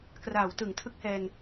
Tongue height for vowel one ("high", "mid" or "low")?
low